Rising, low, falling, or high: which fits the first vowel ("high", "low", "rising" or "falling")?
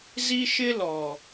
high